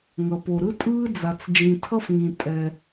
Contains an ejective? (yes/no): yes